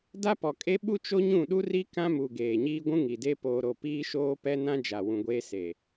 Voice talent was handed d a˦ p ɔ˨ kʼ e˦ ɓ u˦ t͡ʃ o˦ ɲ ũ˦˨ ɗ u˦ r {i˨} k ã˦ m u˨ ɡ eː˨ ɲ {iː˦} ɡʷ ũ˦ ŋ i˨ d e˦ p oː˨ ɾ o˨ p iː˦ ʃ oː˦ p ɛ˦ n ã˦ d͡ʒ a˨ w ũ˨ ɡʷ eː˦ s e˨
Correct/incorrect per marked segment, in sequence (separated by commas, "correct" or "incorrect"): incorrect, correct